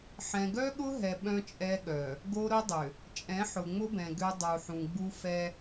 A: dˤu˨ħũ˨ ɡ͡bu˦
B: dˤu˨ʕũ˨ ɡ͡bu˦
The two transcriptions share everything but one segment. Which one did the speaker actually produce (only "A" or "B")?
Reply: A